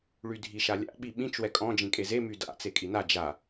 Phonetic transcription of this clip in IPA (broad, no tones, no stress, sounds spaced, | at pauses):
ɭ y dʱ i ʃ a lʲ a̰ ɓ i ɓ ĩ t͡ʃ w ɛ kʼ ɔ̃ d͡ʒ ĩ kʼ e z e m y d a̰ t͡s e kʼ i n a d͡ʒ a